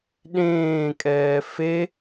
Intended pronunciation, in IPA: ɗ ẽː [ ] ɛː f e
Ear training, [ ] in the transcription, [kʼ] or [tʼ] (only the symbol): kʼ